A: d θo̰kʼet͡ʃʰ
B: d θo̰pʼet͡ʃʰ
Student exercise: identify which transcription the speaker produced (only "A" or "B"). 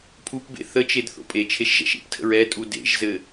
B